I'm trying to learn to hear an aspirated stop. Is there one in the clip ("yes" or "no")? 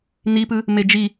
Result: no